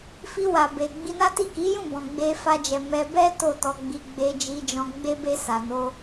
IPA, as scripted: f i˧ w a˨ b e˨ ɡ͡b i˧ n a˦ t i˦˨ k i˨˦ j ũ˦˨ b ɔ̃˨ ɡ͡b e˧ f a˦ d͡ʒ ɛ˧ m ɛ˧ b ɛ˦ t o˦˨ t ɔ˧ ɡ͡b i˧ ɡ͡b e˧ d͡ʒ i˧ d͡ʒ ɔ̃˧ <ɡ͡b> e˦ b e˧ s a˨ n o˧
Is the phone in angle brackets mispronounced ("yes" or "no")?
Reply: no